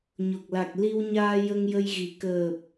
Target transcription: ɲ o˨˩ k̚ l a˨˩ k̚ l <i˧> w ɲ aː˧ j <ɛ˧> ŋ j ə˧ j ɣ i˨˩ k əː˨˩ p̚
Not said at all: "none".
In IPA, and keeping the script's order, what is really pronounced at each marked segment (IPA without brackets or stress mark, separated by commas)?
i˧, ə˧